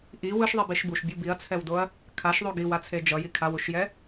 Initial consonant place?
glottal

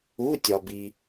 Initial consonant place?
alveolar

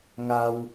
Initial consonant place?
velar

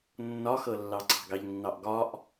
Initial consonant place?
alveolar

